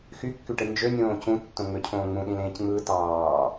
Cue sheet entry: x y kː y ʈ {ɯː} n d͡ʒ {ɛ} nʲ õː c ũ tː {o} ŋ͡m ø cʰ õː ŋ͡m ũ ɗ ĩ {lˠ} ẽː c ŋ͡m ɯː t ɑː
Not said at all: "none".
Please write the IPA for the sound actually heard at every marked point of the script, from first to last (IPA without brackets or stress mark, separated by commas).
ɯ, ø, õ, l